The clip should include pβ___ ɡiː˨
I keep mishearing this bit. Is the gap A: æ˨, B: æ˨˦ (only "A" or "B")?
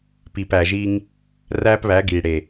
B